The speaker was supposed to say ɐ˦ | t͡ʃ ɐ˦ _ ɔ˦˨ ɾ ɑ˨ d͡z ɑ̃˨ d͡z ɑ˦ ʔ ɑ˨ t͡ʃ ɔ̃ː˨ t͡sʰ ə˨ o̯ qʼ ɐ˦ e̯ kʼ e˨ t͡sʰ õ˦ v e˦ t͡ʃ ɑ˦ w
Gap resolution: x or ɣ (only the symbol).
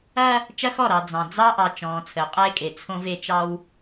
x